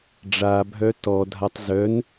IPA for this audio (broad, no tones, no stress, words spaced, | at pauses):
ɖ͡ʐabʱœ tɔdʱatˤ zœn